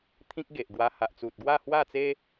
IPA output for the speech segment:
t̪ʰ ĩ˦ k̚ ɡ e˨ ʔ ɡ w a˧ h a˨ ʔ t͡s u˨ t̚ ɡ w a˥˧ h w a˥˧ t͡s e˦

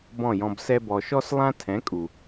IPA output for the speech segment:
b ɔ̃˦˨ j ɔ̃˧ b s ɛ˦ b ɔ˧ ʃ ɔ˦ s lˠ ã˦ tʰ ɛ̃˨˦ kʼ u˨

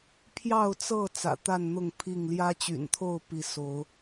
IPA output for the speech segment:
pʰ j ɑ˥˨ ʊ̯ t͡s ɤ˥˨ t͡s ä̰˨˩ t̪ a˥˨ n n̪ ʊ˥˨ ŋ pʰ i˥˨ ŋ l j ä˦ t͡ɕ y̰˨˩ n t̪ʰ o˥˨ ʊ̯ p i˨˦ s o˨˦ ʊ̯

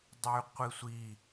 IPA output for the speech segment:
dˤ y qʷ i sʷ i

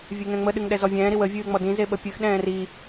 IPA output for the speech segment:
vʲ e ŋ ɛ̃ ŋ͡m ə ɗ ɨ ŋ ɗ ɛ z ɔ vʲ ɛ̃ː ɾ i w ə vʲ ɨː ŋ͡m ɔ d ĩ z e ɓ ə pʲ ɨ x ɗ ɛ̃ː r i

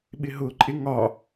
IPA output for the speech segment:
ɓ ɪ ɦ ʊ ǃʼ ɪ ŋ ɒ

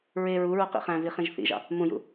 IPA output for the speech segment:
ɹ e ɹ u ɹ u q ḭ χ æ̃ v i χ ĩ ʒ θ ḭ ʒ ɑ̰ | m ũ j ṵ

